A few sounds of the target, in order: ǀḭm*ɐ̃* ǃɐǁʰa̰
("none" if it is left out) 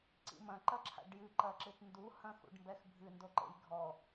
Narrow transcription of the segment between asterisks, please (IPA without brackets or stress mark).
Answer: ɐ̃